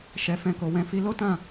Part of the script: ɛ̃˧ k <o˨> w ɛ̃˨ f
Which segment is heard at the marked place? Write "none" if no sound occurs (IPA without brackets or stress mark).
o˨